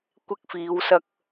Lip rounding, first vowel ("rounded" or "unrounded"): unrounded